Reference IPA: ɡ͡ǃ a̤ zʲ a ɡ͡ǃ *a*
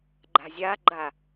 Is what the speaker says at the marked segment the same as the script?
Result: yes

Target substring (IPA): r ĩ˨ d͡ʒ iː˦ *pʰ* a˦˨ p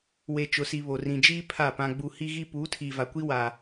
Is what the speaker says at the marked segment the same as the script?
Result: yes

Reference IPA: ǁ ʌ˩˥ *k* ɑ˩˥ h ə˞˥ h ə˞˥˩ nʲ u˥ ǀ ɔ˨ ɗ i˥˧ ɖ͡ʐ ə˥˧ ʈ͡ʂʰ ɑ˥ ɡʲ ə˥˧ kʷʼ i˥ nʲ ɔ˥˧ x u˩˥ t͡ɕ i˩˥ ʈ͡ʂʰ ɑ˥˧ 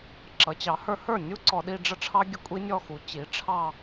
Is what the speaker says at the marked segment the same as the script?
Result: no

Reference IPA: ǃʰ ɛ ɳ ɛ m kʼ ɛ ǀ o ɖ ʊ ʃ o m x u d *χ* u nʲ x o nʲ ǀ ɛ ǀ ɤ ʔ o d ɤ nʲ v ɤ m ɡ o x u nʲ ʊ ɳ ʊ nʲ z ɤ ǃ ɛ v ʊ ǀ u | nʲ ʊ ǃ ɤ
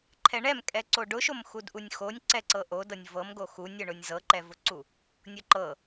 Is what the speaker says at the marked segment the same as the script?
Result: no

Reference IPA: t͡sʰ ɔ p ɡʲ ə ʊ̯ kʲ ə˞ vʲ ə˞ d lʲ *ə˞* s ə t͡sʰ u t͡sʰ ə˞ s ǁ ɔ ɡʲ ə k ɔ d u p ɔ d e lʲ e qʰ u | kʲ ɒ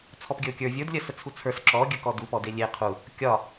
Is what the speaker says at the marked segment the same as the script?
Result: no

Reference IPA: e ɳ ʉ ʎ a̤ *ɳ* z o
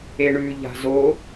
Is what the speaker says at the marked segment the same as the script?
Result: no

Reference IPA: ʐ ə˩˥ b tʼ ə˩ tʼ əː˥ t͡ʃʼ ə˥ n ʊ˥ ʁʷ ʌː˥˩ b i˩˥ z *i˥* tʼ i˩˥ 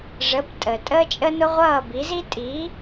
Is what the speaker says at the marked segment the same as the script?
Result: yes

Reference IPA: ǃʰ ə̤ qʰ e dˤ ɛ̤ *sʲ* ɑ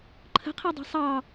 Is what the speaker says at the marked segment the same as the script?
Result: no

